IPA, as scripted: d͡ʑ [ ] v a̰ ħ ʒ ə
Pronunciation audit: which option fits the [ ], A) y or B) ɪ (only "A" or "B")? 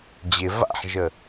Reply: B